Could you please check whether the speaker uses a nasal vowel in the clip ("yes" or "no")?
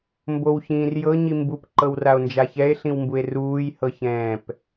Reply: yes